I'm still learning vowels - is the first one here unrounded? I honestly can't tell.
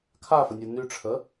yes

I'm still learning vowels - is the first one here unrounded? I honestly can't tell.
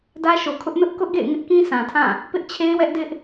yes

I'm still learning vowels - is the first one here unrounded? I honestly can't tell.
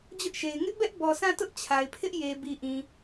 no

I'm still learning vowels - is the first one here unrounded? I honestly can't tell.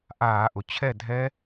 yes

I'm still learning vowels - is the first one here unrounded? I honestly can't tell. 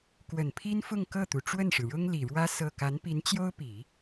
yes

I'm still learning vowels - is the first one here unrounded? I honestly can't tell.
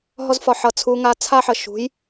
no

